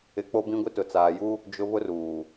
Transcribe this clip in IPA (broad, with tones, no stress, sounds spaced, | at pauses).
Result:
ɪ˨ k͡p o˦ b ĩ˦ ɡʷ ɪ˦ t ʊ˨ t͡s aː˨ j u˦ | d͡ʒ ʊ˦ β ʊ˦ r uː˨